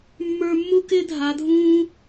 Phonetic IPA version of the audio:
mː ə˞˧ mː u˦ k ɪː˦ dʱ a˨˦ dʱ ũː˦

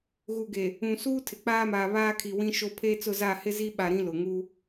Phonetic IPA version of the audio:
ɣ u˨ ɡ e˨ | ũ˨ s uː˦ tʰ ɪ˨ k͡p aː˦ m aː˨ β aː˦ kʰ i˨ w ĩ˦ ʃ o˦ pʰ e˦ t͡s ʊ˦˨ z a˦˨ h ɪ˦ z i˦ ɓ a˨ ɾ ĩ˦ l ʊ˨ ŋ uː˦

